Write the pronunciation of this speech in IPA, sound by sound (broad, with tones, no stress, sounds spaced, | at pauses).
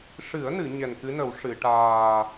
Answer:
ʂ ɨ˨˩˦ ə̯ n ɨ˨˩˨ ɲ ɛ˨˩ n k ɨ˧˥ n ə˨˩˦ w ʂ ɨ˨˩˨ ʈ aː˨˩